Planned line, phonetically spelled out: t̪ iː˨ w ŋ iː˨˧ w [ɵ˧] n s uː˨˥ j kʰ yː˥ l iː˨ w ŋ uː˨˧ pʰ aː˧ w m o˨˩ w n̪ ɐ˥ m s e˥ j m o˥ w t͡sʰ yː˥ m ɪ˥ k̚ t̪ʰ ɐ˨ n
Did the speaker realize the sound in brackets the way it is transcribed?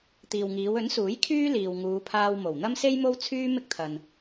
no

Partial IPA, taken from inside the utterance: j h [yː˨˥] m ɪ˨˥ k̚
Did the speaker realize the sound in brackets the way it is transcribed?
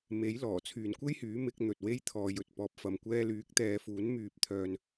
yes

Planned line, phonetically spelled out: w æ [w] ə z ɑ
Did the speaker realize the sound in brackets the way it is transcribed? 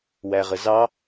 no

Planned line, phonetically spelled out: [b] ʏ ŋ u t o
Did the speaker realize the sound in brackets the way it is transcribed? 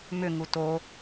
no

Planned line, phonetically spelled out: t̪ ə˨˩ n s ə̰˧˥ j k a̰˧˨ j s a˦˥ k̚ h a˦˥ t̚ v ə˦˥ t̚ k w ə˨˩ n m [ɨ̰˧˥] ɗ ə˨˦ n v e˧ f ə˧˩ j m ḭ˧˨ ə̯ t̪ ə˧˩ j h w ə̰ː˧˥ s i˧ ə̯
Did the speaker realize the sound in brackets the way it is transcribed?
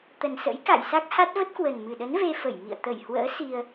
no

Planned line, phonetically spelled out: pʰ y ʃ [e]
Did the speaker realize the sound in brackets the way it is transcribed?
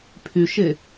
yes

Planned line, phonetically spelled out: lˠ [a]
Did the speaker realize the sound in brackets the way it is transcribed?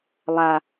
yes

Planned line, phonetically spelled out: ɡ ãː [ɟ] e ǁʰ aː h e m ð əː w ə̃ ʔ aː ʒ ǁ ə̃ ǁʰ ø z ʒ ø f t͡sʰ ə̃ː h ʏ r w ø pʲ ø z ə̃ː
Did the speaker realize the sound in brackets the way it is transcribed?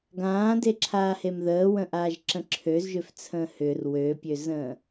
no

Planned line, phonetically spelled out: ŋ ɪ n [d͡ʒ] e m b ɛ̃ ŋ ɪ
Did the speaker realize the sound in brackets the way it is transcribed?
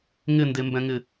no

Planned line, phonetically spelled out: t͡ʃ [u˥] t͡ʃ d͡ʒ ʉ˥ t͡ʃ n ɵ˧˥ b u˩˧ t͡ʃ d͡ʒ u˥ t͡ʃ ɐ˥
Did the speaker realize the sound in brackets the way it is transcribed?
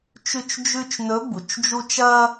no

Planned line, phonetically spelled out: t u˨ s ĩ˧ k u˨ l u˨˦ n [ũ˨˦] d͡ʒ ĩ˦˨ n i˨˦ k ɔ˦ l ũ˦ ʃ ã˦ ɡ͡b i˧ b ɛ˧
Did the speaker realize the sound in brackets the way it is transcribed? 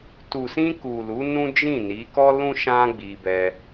no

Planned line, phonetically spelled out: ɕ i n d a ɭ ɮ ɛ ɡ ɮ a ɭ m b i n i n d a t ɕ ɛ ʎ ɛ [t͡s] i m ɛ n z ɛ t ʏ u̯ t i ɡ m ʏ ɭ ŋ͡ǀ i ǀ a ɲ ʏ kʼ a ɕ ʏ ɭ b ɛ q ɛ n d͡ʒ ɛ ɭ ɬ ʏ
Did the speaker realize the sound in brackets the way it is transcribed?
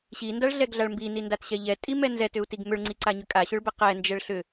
no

